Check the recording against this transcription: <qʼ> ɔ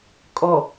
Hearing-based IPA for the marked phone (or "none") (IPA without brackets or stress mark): kʼ